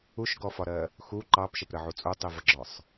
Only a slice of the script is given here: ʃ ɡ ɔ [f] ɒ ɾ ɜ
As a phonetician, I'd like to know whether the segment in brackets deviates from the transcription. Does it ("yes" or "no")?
no